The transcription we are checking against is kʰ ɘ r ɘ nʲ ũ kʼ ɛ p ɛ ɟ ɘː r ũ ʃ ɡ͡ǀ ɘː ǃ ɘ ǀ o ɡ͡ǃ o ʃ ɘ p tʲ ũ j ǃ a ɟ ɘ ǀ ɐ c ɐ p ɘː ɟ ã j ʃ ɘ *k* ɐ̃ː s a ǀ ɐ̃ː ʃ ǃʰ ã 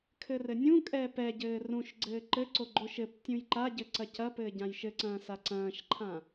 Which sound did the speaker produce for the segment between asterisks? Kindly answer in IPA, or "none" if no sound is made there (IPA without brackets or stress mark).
ǀ